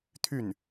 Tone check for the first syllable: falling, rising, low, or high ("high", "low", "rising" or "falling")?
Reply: falling